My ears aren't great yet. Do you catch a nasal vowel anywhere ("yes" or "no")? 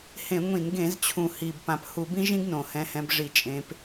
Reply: yes